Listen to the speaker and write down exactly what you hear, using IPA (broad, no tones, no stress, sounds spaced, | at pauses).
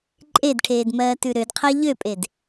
ǃʼ e d ʈʰ eː d m ɜː t ʉ ɾ ø d qʰ ɜ ʎ ø pʼ e d